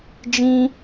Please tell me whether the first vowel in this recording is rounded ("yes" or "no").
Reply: no